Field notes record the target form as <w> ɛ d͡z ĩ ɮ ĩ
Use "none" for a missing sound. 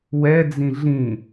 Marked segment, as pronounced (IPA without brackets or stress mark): w